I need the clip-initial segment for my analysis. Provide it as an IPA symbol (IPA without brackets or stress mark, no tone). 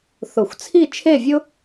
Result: θ